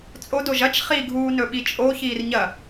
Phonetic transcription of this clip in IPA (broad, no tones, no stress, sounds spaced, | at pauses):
t͡sʼ o d o ʒ ɐ t͡ʃ χ i ɡʱ uː n ɵ ɓ i t͡ʃʼ o ç iː r ɲ ɐ